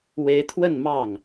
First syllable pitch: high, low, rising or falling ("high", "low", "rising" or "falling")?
rising